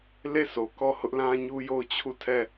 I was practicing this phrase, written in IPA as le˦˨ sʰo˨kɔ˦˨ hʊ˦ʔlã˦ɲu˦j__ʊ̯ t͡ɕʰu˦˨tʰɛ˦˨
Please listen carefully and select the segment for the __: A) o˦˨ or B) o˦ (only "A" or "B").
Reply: A